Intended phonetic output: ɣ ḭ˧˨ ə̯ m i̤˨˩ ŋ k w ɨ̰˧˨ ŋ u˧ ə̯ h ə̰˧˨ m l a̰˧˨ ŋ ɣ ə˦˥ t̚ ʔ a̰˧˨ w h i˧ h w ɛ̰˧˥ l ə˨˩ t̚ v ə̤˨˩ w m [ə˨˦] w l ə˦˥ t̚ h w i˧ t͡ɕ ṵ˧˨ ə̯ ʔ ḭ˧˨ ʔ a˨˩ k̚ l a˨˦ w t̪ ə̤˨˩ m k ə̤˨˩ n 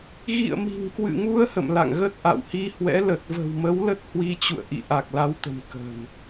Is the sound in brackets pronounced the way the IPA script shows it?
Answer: yes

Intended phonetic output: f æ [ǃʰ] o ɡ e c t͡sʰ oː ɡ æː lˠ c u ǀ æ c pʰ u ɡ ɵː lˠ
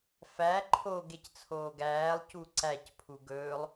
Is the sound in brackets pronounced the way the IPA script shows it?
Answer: yes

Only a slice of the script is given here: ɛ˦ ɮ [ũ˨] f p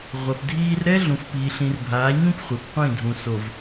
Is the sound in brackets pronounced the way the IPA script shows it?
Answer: yes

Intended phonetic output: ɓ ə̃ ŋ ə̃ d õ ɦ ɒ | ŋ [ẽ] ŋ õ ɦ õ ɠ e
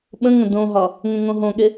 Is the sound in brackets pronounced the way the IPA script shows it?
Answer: yes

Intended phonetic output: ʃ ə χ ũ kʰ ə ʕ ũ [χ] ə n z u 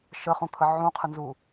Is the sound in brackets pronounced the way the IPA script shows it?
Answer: no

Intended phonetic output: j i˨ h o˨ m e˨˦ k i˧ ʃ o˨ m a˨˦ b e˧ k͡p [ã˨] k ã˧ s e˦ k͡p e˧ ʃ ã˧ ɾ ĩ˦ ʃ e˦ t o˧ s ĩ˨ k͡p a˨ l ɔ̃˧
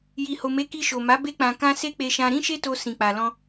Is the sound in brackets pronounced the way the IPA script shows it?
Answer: yes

